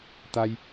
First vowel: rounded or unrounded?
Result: unrounded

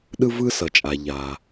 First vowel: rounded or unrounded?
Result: unrounded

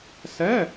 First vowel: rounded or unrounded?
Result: unrounded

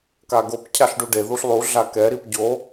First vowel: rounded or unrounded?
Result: unrounded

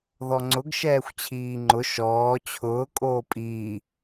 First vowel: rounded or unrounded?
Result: rounded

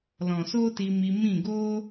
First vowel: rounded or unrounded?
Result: rounded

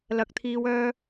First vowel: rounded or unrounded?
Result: unrounded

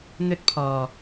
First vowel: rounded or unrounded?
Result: rounded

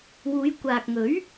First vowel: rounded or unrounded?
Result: rounded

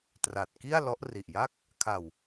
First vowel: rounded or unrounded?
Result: unrounded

